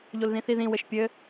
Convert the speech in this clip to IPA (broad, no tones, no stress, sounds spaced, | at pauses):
ʎ o l ð ĩ θ i ð ĩ w ɘ ʃ pʲ ɘ